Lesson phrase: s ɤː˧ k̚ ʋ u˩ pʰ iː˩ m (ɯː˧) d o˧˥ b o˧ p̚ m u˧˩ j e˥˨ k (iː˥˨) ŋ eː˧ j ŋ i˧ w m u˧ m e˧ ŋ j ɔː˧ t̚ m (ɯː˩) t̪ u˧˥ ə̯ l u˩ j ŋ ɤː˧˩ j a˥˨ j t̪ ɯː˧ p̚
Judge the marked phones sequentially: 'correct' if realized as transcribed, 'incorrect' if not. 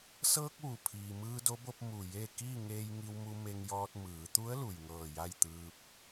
correct, correct, incorrect: ɯː˩˧

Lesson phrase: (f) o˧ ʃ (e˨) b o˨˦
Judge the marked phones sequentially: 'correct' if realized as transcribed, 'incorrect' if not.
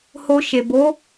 incorrect: h, correct

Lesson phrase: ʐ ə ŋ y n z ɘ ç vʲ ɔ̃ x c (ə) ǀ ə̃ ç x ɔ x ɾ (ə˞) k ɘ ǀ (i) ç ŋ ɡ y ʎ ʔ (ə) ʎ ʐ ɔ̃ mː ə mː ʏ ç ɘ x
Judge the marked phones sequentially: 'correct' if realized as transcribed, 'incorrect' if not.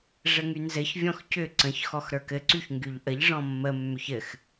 incorrect: ʏ, correct, incorrect: y, correct

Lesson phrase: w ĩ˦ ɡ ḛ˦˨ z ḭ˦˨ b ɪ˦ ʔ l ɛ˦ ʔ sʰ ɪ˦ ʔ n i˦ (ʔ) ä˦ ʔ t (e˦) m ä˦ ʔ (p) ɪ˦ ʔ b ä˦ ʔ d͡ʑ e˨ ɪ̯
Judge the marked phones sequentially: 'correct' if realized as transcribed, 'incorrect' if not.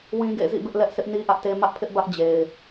correct, correct, incorrect: pʰ

